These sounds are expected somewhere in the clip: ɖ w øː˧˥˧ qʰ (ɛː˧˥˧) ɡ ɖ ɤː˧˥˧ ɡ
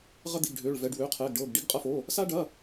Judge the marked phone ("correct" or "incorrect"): correct